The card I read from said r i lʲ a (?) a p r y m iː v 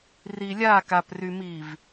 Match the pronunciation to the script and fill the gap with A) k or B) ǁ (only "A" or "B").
A